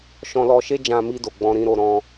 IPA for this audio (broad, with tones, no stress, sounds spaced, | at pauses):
ʃ ɔ̃˧ l ɔ˧ ʃ e˦ d͡ʒ ã˧ m i˧ d o˨ ɡ͡b ɔ̃˧ ɾ ĩ˧ ɾ o˧ ɾ ɔ̃˧